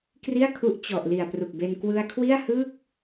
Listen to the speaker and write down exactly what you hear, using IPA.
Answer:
k r i˥˩ a̯ kʰ u˦˥ ʔ t͡ɕ ɔ˨˩ ʔ l i˨˩ a̯ p r u˨˩ k̚ b e˧ n k w ɯ˧ a̯ kʰ w i˥˩ a̯ h ɯː˥˩ k̚

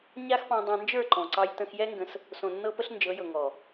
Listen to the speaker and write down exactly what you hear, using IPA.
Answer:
ɲ a˦ x p ɑ̃˧ dˤ ɑ̃˧ n d͡ʒ ə˞˦˨ ǃ ɔ̃˨ ǀ ɑ˧ j t ə̃˧ x j ɛ˦ ŋ ɡ ə̃˧ s | s õ˨ nː ɤ˧ p ə˧ ɬ n d͡ʒ ɤ˨˦ j ɤ˨ ŋ ɔ˨

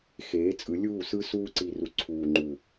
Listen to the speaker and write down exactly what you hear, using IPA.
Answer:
x eː˨˦ t͡sʼ ɯ˨˦ lʲ uː˦˨ s ɯ˧ s uː˧ ǀ i˨ r u˨ ǀʰ uː˨ ŋ͡ǃ u˨

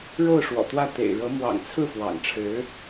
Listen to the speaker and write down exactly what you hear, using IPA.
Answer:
ɻ o˥˩ ʊ̯ ʂ w ɔ̰˨˩ t̪ w ä˥˩ t̪ ḛ˨˩ ɪ̯ ɻ ɤ˧˥ m w ɑ̰˨˩ ŋ t͡sʰ ɹ̩˥˩ f w ɑ̰˨˩ ŋ ʈ͡ʂʰ ɻ̩˧˥

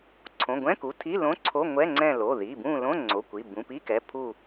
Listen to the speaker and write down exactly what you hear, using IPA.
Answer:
ǀʰ õ˩˧˩ ɡʷ ɛ̃˧˥˧ k u˩˧˩ tʰ i˧˥˧ l õ˧˥˧ ǀʰ o˧˥˧ ŋʷ ɛ˧˥˧ ŋ͡ǀ ɛ̃˦˨ l o˩˧˩ ð i˩˧˩ b ũ˦˨ l õ˧˥˧ ŋ͡ǀ o˩˧˩ kʷ i˩˧˩ b ũ˩˧˩ p i˧˥˧ k ɛ˩˧˩ pʰ u˦˨

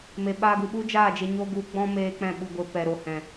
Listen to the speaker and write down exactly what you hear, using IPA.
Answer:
m e˨ ɓ aː˧ ɡ u˨ ɓ u˦ d͡ʒ aː˦˨ d͡ʒ e˧ ɲ o˦ ɡ u˧ ɡ͡b ɔ̃˦ m eː˦ k͡p ɛ̃˦˨ ɓ u˧ ɡʷ e˧ p ɛ˨ ɾ o˨ h ɛ̃˨

